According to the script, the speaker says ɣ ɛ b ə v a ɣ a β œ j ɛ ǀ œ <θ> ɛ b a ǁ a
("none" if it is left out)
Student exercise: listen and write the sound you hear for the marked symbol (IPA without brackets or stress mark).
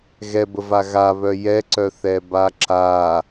θ